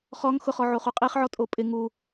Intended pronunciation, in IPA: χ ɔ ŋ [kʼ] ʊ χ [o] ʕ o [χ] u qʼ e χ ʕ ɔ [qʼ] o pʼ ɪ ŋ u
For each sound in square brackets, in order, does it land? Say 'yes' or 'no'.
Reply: no, no, yes, no

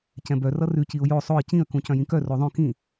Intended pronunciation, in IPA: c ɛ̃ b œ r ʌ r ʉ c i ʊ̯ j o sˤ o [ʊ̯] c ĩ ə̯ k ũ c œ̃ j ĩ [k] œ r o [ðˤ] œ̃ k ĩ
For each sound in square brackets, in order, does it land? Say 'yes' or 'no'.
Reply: no, yes, yes

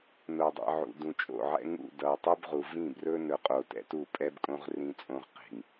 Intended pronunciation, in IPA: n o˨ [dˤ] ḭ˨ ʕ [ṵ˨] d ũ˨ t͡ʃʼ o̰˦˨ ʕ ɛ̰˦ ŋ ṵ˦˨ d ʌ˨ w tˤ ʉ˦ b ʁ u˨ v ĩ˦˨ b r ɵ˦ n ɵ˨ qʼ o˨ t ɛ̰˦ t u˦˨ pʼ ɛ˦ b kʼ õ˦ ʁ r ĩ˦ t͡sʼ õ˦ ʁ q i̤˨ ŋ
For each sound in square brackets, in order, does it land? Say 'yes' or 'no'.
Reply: yes, yes

